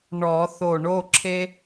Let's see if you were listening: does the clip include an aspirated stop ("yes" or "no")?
yes